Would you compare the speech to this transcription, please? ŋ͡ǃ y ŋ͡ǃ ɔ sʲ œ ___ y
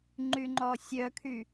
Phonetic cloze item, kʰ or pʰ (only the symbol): kʰ